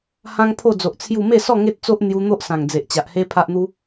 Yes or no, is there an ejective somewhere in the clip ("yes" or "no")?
no